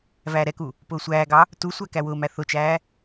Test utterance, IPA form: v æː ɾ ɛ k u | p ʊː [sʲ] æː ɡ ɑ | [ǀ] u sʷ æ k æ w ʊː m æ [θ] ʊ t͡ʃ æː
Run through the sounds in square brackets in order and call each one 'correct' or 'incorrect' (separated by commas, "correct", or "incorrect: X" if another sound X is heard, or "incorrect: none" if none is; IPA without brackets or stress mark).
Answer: incorrect: sʷ, incorrect: t, correct